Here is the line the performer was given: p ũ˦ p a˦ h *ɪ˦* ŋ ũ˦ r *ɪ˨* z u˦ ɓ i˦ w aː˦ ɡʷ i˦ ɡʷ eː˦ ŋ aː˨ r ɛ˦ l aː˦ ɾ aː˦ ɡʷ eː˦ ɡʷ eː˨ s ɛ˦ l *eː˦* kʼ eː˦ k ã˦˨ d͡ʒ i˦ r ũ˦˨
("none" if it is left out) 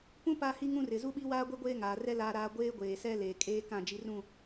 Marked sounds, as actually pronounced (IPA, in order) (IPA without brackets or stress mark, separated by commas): i˦, ɪ˨, eː˨